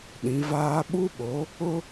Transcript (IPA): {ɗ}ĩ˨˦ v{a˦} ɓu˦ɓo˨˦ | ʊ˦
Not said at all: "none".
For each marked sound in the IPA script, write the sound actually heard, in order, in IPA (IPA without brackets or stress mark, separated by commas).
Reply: ɗ, aː˦